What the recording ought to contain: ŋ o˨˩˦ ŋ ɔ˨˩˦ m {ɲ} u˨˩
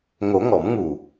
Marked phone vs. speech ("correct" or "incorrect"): incorrect